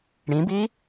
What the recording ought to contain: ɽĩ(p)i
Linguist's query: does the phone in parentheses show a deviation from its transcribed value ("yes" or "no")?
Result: yes